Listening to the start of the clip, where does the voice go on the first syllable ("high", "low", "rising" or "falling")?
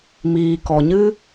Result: low